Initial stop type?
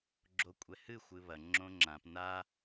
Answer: click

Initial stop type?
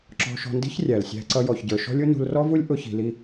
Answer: click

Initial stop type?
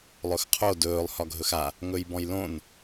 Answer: aspirated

